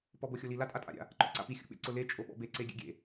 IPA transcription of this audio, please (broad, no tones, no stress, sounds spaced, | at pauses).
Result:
p ɔ b o xʲ o l i l a tʼ a tʼ a̰ ɾʲ a̰ | ǃ ɔ̰ ǀ a̰ p i xʲ ṵ ɓ ḛ ǀ ʊ l e t͡ʃʼ o ɓ ɔ̰ b e ǀ e ɡʲ ḛ ɡʲ ḛ